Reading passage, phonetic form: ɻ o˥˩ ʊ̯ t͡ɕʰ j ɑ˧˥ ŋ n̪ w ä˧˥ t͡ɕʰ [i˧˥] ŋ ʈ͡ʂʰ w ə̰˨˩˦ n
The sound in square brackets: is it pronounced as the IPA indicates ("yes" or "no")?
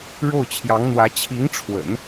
yes